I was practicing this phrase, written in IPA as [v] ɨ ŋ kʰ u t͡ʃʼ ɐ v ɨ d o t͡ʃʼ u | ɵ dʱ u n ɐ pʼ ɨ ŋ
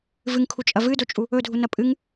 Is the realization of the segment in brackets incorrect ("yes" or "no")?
no